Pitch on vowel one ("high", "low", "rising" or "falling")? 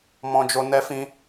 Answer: high